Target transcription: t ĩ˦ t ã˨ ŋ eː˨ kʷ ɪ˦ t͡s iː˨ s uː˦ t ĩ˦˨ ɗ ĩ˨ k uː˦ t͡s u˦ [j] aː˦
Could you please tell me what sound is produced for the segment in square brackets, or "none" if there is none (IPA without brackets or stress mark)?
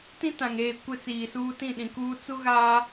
ɣ